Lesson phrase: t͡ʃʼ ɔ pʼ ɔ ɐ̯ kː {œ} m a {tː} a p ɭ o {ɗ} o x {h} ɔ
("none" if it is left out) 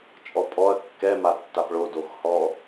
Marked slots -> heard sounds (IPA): ɛ, tː, d, h

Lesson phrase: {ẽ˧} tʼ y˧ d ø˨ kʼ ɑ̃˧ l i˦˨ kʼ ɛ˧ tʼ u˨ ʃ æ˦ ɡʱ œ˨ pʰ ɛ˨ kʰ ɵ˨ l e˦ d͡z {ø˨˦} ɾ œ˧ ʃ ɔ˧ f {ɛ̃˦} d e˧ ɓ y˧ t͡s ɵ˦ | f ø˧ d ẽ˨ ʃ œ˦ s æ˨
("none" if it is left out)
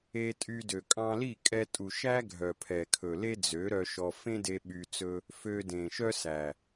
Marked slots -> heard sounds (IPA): e˧, ø˨˦, ẽ˦

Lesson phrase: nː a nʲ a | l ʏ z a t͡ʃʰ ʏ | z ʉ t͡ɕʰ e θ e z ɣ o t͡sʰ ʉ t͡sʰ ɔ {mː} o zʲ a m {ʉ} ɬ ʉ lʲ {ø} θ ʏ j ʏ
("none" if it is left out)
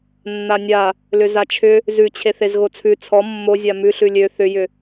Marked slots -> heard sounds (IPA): mː, ʉ, ø

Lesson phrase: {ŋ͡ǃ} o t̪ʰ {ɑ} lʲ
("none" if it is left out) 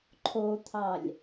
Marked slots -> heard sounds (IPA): ǃʰ, ɑ

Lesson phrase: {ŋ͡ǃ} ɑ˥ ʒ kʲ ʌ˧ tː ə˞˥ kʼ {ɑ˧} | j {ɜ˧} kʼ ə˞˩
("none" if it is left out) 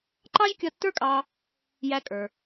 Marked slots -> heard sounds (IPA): ǃ, ɑ˧, æ˧

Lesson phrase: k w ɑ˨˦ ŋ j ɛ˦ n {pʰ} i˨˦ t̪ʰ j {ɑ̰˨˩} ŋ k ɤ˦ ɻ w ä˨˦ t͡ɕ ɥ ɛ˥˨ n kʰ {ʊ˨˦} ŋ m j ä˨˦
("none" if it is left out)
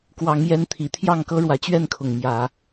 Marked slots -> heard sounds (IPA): t̪ʰ, ɑ˥˨, ʊ˨˩

